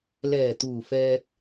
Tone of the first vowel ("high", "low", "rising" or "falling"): low